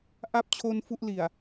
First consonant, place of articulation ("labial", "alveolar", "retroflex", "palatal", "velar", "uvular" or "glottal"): glottal